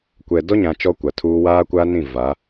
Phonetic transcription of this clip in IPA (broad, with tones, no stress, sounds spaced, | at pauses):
kʷ ɛ˨ d ɔ˦ ɲ ã˨ t͡ʃ ɔ˦ kʷ a˨ tʰ uː˦ w aː˦ kʷ a˦ n ĩ˦˨ v a˨˦